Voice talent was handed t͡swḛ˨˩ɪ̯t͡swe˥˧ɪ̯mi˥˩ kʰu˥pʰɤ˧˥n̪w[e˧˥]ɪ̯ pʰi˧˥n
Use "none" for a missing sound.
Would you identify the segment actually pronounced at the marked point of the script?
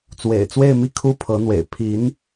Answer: ḛ˨˩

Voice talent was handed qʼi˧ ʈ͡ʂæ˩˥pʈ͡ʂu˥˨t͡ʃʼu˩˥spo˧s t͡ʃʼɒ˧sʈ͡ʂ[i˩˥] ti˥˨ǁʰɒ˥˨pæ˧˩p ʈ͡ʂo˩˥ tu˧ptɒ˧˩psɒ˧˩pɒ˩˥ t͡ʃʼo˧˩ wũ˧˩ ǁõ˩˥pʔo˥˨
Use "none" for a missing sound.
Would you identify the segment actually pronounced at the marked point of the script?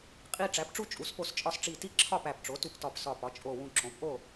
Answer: i˧˩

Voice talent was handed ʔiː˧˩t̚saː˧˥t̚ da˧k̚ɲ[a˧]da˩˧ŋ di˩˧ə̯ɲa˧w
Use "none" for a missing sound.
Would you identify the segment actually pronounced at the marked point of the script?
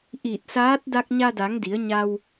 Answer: a˧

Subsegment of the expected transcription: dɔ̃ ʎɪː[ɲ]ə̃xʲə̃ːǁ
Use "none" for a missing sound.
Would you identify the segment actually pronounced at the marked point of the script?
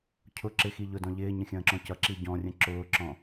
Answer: ɲ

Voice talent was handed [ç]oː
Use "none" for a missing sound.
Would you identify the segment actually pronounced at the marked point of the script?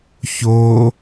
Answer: ç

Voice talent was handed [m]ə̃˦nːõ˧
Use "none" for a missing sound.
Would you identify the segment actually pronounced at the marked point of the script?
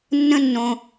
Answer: nː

